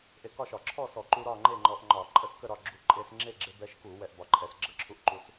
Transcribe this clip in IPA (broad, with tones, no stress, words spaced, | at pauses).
ʔe˧kɒ˥˨ʃɒ˧˩˧ ǁʰɔ˥˨sɔ˧˩˧ǃu˧ ɾɒ˥˨ŋ͡ǃe˥˨ŋ͡ǃɔ˧ʔŋ͡ǃɒ˧˩˧ ǃʼə˥˨skə˥˨ɾɒ˥˨ ɡ͡ǁu˧ ǃʼe˧sŋ͡ǁe˥˨ɡ͡ǁe˧ bɛ˧ʃku˧˩˧ wɛ˧ʔbɒ˧ǃʼɛ˧˩˧s ɡ͡ǁə˥˨ǁʰu˧ʔ ǃu˧s